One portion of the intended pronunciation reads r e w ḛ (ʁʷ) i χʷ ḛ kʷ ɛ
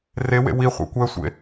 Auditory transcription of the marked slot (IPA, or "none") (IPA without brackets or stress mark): w